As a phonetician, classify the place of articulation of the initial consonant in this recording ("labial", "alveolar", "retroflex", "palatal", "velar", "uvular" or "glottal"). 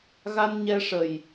velar